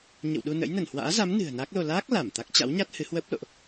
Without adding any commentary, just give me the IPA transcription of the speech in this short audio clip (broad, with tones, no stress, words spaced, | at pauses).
ɲə̰˧˨wɗu˧nə̰˧˥j nə˧˩nhwa̰ː˧˥za˨˦m nɨ̤˨˩ə̯na˦˥k̚lo˧ laː˦˥k̚ la˧˩mt̪a˦˥k̚ t͡ɕa̰˧˥wɲa˦˥t̚ hɨ˨˦hwəː˦˥p̚lo̰˧˨ʔ